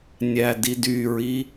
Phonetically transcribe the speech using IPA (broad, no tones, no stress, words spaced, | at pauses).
nʲædidyɹi